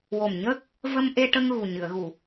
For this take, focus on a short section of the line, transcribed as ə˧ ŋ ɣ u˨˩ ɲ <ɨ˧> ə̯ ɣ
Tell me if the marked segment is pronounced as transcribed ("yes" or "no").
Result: no